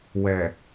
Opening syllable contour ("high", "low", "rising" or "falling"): low